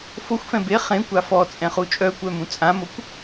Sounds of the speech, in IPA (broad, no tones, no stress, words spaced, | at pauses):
foxʷfɛ̃ be χẽkʷa fɔt͡sʼɛ̃χu t͡ʃʼœkʷœmũ t͡sʼãmokʷ